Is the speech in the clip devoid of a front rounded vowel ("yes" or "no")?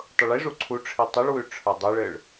yes